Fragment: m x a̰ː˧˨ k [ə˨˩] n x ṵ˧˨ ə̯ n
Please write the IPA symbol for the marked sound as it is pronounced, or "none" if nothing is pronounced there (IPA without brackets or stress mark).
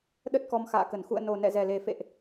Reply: ə˧˩